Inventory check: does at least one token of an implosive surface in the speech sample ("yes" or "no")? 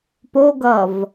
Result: no